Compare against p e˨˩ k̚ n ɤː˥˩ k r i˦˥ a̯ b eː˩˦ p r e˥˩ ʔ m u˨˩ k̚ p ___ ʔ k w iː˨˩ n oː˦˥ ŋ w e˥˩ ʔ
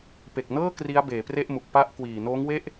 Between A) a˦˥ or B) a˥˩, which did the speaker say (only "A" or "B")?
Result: A